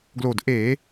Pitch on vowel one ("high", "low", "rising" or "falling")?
low